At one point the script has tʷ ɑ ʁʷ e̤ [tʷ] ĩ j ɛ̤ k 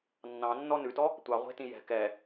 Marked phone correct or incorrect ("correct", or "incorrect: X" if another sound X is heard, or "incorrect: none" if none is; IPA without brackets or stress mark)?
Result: incorrect: t